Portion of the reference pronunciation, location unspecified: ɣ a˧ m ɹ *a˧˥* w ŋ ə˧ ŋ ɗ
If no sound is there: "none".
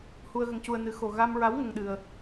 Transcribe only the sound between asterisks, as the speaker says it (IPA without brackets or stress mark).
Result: a˧˥